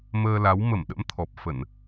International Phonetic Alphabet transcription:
m əː˧ l a˨˦ w m ə˧˩ m ɗ ə̰˧˥ m t̪ʰ ɔ˨˩ p̚ f ə˧˩˨ n

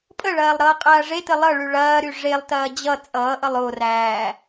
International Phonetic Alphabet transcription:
pʼ ə ɭ ɐː lˠ ɾ ʌː qʼ ɐː ʐ e t ə lˠ ʌ ɭ y ɭ ɐː ɾ y ʐ e lˠ t ɐː d͡ʑ ʌ t͡sʼ ʌː ʔ ʌ lˠ o r æː

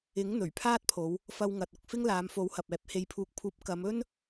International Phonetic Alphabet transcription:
ɪ˨˥ ŋ n̪ ɵ˨˩ ɥ pʰ aː˥ t̚ pʰ o˨˧ w | f ɐ˧ w ŋ ɐ˨ t̚ ʊ˨ k̚ f ɪ˥ ŋ l aː˨˧ m f o˨˥ w h ɐ˨ p̚ ɛː˨˥ p̚ h e˨˧ j pʰ uː˨ k̚ pʰ uː˨˥ p̚ k ɐ˨˧ m ɵ˥ n

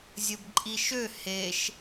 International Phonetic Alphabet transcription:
zʲ ə b ǃʼ i ʃ ø h e ʃ

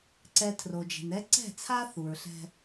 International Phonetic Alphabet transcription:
ǀ ɛ˨ tʰ r o˨ d͡ʒ e̤˨ n ɛ˦ ǀ ɛ̤˦˨ t͡sʰ a˦ θ u˨ ɹ ɬ ɛ̤˦

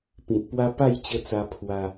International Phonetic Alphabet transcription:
p ĩ˨ t̚ p w a˦ p a˥˧ j t͡ɕ ə˧ t͡s a˧ pʰ w a˧

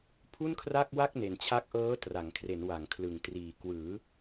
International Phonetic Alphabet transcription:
pʰ u˥˩ n kʰ r a˥˩ k̚ w a˥˩ k̚ n e˨˩ n t͡ɕʰ a˦˥ k̚ ʔ ɤː˦˥ t r a˩˦ ŋ kʰ r e˩˦ n w a˩˦ ŋ kʰ l ɯ˨˩ ŋ t r iː˨˩ k w ɯː˩˦

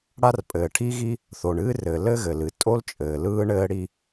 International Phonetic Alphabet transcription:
ɽ a˥ r pʼ ɘː˩ ʈʰ i˥ ɣ i˥ | θ o˩ ɳ ɨː˥ r ɘː˩ l ɘ˥ ɣ ɘ˩ l ɨ˩ tʼ o˥ l t͡ʃʼ ɘː˩ l ɯː˥ ɳ ɘː˥ ɽ i˥

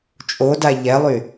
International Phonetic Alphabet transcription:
t͡ʃʼ o d a ʎ ɛ lˠ y

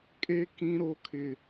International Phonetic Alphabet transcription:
kʼ e˦ k ĩ˦ ɾ o˦ kʰ ɪ˦

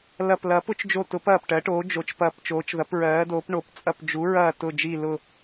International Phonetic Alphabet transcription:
l ɐ˦˨ p l ɐː˨˥ p ʊ˨˥ t͡ʃ d͡ʒ o˦˨ t ʊ˨˥ p ɐː˦˨ p ʈ ɜ˨˥ ʈ oː˨˥ d͡ʒ o˨˥ t͡ʃ p ɐː˦˨ p t͡ʃ oː˨˥ t͡ʃ ð ɐ˨˥ p ɹ ɜː˨˥ d oː˨˥ p ɳ o˨˥ p t͡sʼ ɐ˦˨ p d͡ʒ u˨˥ ɹ ɐː˦˨ t ʊ˦˨ d͡ʒ i˦˨ l ʊ˦˨

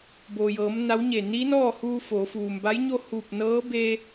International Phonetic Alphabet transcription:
b oː˩ j ɤː˩˧ m n a˧˥ w ɲ e˧˩ n i˧˥ n ɔː˥˨ h uː˧ f oː˩˧ f uː˩ m b a˧˥ j ɲ o˥˨ h uː˧˩ p̚ n ɤː˧˥ b e˧

